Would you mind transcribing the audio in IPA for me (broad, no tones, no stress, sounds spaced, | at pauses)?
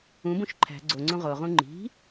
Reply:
ũ b ũ ʃ ǃʰ æ̤ ɡ͡ǀ o ŋ͡ǀ ũ ʁ o ʁ ũ ŋ͡ǃ i̤